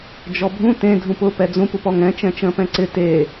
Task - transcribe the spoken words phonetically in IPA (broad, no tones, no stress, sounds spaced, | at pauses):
d͡ʒ ɔ bʱ ũ t ẽ dʱ ũ p ʊ p ɛ d͡z ũ p u p ɔ ŋ ɛ̃ t͡ʃ ɛ̃ t͡ʃ ə̃ː p ɛ̃ ǀ ɪ t e